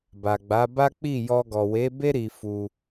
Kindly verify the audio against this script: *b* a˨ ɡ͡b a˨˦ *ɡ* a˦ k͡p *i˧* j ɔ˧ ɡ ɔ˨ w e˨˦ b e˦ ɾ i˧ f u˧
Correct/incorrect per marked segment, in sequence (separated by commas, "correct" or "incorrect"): correct, incorrect, incorrect